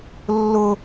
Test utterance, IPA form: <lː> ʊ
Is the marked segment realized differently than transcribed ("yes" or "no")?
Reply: no